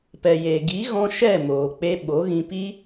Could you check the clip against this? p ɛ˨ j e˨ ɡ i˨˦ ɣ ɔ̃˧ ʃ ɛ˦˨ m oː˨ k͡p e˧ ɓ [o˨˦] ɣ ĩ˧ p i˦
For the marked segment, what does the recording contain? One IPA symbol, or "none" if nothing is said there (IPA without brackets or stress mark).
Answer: o˨˦